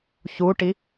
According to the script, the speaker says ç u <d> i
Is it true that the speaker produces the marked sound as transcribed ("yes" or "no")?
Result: no